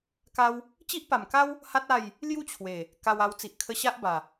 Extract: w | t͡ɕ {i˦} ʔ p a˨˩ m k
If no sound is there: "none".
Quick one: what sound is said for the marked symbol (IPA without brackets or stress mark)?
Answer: i˦